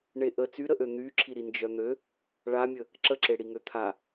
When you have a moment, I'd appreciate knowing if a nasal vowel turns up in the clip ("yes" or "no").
no